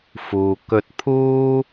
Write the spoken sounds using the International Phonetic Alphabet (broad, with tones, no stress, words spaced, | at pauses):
fuː˨kɵ˧t̚ pʰuː˥